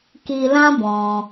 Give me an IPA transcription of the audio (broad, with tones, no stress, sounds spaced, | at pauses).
k i˧ l ã˦ b ɔ̃˧